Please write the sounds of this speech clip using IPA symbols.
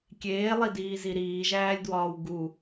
kʲeːlˠidiːzi ɾiːʒæːlʲdwɒːw ɡu

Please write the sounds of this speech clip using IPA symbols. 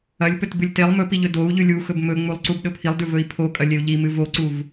ɐlʲpɵtbɨlʲ telˠ mɵpiʎɵ dou̯ ʎʉlʲuxɵb mɵŋ͡mulˠǀub ɗɵpʰilˠdʉ vɵi̯pʰokʼɐ lʲeu̯ʎimɨ voǀuv

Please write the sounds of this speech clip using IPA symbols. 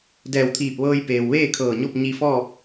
dɛː˧˩wt̪ʰiː˧˩p̚ʋɤː˧jpeː˩w ʋeː˥˨kʰɤː˧˩ɲo˥˨p̚ ɲi˧fɔː˥˨p̚

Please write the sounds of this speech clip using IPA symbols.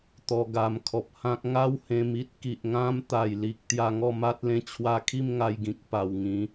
t̪ɔ˧ɡa˧m kʰɔ˨p̚hã˦k̚ ŋa˦whẽ˧mi˦t̚ ki˨ʔŋã˦m t̪a˨˩jli˨k̚ t̪ja˧ŋɔ˥˧ma˦t̚ lẽ˧t͡ɕʰwa˧kʰi˥˧m ŋa˧jɡĩ˨k̚ pa˨˩w ŋĩ˨˦

